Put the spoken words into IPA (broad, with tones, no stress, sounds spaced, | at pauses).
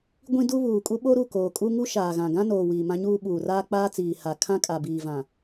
ɡʷ ĩ˦ d u˦ β uː˨ kʼ u˦ ɓ o˦ ɾ u˦˨ k oː˨ kʼ u˦ ŋ u˦ ʃ aː˨ ɣ ã˨ ɡ ã˦ n oː˨ w iː˨ m ã˦ ɲ uː˦ ɓ uː˨ r aː˦ k͡p aː˦ t͡s iː˨ h a˨ kʰ ã˦ kʼ a˨ b iː˨ v ã˨